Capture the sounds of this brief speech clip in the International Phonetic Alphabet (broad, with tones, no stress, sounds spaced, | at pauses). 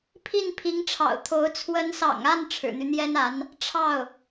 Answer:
pʰ i˥˩ n pʰ i˧˥ ŋ ʈ͡ʂʰ ɑ̰˨˩ ʊ̯ t̪ʰ o˧˥ ʊ̯ t͡sʰ w ə˧˥ n s ɑ̰˨˩ ŋ a˥˩ n ʈ͡ʂʰ ɻ̩˨˩ n̪ y˦ n̪ j ɛ˥ n a˧˥ n | ʈ͡ʂʰ ɑ˥˩ ʊ̯